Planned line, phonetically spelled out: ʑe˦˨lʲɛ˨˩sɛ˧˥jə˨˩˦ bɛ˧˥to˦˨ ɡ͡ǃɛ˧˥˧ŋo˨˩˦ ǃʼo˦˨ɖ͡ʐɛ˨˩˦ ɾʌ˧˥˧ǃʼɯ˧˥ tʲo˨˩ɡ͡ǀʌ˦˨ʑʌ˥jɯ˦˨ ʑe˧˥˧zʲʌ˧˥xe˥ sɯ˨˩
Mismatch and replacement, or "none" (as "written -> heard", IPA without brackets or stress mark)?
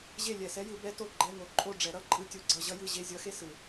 ə˨˩˦ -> ɯ˨˩˦